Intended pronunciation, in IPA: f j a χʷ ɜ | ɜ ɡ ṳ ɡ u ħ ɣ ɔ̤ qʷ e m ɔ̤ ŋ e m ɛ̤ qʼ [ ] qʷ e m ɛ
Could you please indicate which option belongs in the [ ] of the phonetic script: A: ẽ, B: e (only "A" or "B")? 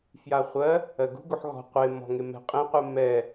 A